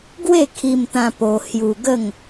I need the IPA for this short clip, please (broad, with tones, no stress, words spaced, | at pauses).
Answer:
ɡwe˥˧kʰi˧mt̪ã˧ po˧hju˧ ɡə˥˧ŋ